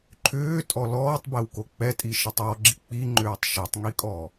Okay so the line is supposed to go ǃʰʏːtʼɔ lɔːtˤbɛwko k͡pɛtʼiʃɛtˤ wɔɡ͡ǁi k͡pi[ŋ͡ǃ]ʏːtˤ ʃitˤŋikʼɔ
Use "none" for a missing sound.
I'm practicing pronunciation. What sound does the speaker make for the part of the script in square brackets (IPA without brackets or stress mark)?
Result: ŋ͡ǃ